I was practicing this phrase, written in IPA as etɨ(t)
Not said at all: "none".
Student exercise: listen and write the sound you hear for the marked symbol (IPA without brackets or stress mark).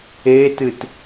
t